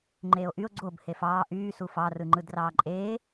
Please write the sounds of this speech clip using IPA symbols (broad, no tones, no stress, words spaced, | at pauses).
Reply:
ŋ͡ǃeːo̯ʔyo̯ ɡ͡ǀob hefɑː ʔyː sufɑ rɯŋ͡ǃɯdrɑːǃʼeː